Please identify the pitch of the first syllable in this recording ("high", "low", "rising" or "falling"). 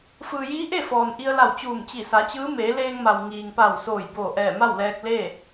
low